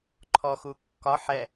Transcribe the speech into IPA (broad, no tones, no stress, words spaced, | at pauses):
ǃʰɔxukːɒ ħɛ